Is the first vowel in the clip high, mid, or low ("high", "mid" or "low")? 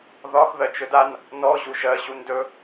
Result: low